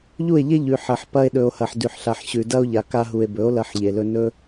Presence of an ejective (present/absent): absent